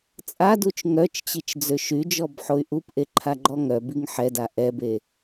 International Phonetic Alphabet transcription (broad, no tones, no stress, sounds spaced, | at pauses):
t͡sʼ a d u t͡ʃ ŋ œ t͡ʃ t͡ɕ i t͡ʃ d͡z ø ʃ y d͡ʒ ɔ b ħ o y̯ ʔ u p ʔ e ǃʰ a ɡ͡ǃ ɔ ŋ œ b i ŋ ħ ɛ d a ʔ ɛ b e